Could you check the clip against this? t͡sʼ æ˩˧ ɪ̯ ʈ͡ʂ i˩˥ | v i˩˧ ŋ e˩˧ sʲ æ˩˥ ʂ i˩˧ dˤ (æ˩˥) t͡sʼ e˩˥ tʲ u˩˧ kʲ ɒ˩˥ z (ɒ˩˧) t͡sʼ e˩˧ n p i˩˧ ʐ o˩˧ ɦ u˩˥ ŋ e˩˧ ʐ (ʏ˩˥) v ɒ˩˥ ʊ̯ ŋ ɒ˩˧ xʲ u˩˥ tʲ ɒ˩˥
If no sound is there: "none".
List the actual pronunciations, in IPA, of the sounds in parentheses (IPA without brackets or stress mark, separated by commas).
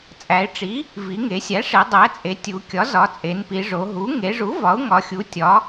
æ˩˥, ɒ˩˧, u˩˥